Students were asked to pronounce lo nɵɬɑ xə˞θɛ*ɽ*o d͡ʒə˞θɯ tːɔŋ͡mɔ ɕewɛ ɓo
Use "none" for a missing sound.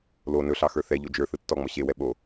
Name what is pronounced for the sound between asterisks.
ʎ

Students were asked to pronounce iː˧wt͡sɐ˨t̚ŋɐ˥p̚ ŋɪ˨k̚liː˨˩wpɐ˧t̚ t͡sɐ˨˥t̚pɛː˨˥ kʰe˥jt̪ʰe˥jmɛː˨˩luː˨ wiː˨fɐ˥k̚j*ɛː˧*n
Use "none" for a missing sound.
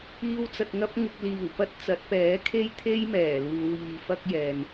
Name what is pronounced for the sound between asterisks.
ɛː˨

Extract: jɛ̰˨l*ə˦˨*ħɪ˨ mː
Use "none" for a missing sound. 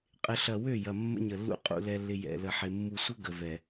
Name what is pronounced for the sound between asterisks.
ə˨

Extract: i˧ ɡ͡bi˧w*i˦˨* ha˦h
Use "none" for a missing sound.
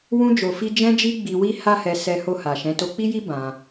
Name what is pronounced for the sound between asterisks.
i˦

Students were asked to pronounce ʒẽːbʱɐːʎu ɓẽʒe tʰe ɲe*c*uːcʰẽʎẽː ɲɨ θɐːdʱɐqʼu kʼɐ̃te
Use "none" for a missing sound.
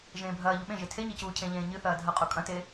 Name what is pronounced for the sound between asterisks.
c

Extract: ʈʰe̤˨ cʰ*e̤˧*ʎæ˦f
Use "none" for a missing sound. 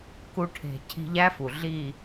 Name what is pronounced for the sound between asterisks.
i̤˧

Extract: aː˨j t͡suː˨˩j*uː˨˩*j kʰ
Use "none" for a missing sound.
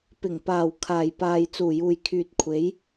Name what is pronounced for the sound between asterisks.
uː˨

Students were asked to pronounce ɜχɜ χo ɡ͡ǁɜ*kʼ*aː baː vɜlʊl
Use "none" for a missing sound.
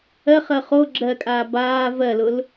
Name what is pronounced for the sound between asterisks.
kʼ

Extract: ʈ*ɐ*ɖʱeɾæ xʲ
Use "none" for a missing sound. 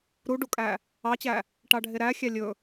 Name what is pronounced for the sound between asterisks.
ɑ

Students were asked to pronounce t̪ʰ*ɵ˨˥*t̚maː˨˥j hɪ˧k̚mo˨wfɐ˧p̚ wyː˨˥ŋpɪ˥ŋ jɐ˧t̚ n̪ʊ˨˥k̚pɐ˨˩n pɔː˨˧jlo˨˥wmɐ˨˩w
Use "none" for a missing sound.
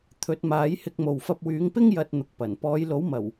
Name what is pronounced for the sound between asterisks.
ɵ˨˥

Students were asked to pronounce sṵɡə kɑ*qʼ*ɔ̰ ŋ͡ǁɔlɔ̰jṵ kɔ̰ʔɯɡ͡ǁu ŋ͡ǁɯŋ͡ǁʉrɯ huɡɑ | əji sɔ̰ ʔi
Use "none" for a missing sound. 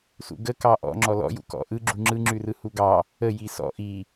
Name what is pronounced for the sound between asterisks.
ʔ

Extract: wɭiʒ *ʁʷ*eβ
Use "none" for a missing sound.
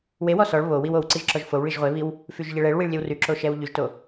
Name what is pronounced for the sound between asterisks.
ʁʷ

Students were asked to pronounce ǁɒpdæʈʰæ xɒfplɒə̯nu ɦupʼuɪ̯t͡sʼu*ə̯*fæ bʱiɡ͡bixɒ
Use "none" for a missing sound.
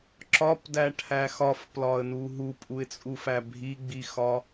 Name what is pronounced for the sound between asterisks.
none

